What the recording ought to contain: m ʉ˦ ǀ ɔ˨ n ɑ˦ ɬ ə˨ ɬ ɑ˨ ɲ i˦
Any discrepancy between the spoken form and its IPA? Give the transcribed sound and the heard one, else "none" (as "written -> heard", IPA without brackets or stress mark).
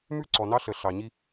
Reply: none